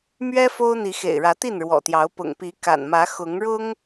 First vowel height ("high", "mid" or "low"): mid